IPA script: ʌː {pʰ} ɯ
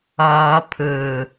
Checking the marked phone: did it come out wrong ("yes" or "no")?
no